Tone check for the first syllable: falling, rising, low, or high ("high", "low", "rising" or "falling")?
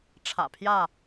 low